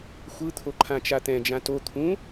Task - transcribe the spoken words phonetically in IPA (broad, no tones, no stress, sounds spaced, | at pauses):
xʷ ɯ t̪ʰ o ǃʰ ã t͡ʃ a t̪ ɛ̃ d͡ʒ ã t o t̪ʰ ũ